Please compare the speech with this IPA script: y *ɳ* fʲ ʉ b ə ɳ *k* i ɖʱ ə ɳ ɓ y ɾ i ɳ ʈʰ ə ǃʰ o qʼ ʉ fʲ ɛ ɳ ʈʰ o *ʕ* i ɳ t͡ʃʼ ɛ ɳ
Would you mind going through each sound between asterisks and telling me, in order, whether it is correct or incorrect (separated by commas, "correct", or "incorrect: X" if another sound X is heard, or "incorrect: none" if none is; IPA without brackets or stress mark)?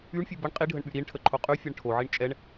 correct, incorrect: qʼ, correct